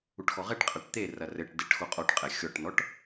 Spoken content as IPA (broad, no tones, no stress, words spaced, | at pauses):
uʈxɔʁɛʈqʼɐʈ t̪e rɐrɘʈdeʈ xoqʼɔʈqʼɛ xʲɔʈnɔʈ